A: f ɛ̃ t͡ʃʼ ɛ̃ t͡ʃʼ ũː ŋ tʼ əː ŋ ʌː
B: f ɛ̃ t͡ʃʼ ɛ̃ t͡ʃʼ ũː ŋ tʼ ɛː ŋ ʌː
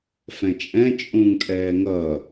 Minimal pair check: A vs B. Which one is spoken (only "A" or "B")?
B